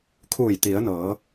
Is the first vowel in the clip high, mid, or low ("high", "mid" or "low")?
high